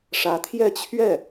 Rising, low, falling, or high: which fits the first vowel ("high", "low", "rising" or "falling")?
rising